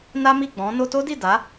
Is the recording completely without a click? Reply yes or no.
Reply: yes